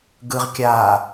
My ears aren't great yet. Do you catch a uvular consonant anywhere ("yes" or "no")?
yes